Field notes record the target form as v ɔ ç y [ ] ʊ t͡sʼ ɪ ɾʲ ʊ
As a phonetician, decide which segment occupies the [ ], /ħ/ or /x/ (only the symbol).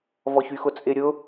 x